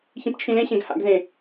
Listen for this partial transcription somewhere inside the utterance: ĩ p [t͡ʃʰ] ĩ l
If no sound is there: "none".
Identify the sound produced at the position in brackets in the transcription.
t͡ʃʰ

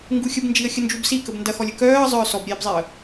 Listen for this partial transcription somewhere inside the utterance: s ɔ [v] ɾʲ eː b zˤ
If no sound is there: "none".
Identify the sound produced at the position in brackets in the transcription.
b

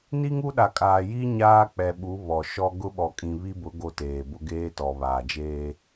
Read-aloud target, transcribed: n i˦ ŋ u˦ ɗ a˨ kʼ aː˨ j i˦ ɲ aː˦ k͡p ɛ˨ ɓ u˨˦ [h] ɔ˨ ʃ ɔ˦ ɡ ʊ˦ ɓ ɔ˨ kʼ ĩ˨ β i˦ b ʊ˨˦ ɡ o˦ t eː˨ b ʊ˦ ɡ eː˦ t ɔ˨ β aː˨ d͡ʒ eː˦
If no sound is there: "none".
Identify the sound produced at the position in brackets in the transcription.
β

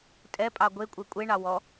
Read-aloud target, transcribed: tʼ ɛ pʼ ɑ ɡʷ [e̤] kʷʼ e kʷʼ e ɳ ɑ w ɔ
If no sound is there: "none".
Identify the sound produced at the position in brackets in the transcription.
e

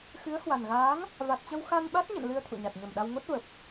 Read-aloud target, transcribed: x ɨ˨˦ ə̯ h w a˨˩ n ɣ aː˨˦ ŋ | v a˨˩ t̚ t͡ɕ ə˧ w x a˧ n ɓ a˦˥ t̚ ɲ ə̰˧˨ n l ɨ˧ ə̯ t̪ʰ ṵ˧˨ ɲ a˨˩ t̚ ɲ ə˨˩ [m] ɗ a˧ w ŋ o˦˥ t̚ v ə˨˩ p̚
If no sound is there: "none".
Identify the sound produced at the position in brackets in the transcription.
m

